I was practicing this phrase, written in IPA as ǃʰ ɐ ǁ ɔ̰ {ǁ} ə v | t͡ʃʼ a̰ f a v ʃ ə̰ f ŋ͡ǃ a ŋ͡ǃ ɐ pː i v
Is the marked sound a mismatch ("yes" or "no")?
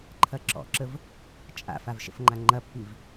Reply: no